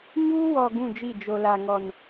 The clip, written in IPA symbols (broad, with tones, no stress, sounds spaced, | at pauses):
ɲ uː˦ w ɔ˨ ɡ ũ˦˨ d͡ʒ i˦˨ d͡ʒ o˨ l a˨ ŋ ɔ˨ n